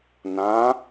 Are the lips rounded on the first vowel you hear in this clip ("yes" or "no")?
no